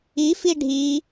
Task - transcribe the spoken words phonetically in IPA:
ifi ɖʱi

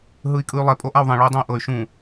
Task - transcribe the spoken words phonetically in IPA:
ɦɯi̯kʼɯy̯lˠɛ pʼoʔau̯ðˤẽ ɭɔy̯dˤũy̯ʔɤy̯ ʃũ

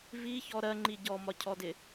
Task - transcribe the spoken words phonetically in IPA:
viçɔ ɾɜŋ͡ǃi ɟɔmɒcʰɔdɪ

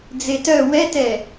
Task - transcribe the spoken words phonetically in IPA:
d͡zetœ wɛtɛ

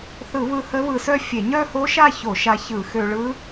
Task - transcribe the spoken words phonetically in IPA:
θɯ˧˩˧βɯ˧ hə˦˥βɯ˧sœ˥˧ fʲe˧˩˧ɲœ˥˧ho˦˥ʃa˥˧ ço˧˩˧ʃa˧çɯ˧˩˧ xø˧ɭɯ˦˥

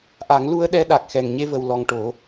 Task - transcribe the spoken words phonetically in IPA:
ʔa˨˩˦ŋ lu˧ə̯ɗɛ˧ ɗa˨˩k̚xɛ˨˩ŋɲe˧ və˨˩wlɔ˨˩ŋ ʈo˨˩˦

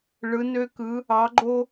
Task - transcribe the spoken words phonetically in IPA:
ɭɯ˨˦nø˦kɯ˨˦ | ɑ˨˦ɡ͡ǃo˦

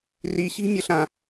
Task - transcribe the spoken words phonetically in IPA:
riɕi̤mʲəɬã

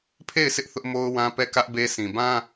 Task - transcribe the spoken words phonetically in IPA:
pʰe˦˨ɪ̯ sʰɪ˦ʔ θʊ˦ʔmo˦ʊ̯ wã˦pɛ˦˨kä˦ʔ be˦sʰĩ˨ bã˦

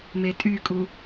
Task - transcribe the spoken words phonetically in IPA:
metʼykʼu

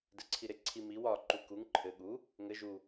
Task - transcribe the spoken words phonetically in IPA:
dɘǀʰiɾeǀʰi miw ɒ ǃukuŋ ǃʰɘ ɠu | ŋɘ ʒu

